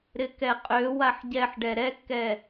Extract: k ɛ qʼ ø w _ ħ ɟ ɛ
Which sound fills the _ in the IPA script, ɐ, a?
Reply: a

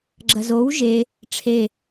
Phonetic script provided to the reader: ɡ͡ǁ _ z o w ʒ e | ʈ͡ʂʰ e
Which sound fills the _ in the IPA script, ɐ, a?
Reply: ɐ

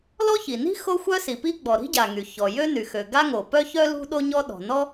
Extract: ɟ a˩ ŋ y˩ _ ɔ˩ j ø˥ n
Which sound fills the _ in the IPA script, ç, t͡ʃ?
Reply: ç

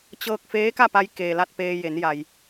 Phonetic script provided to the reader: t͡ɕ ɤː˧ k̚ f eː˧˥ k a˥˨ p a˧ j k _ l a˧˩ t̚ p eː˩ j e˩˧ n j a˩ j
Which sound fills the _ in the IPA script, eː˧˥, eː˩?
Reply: eː˩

